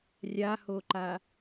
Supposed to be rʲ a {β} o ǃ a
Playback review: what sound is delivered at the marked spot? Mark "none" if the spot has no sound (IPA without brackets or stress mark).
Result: h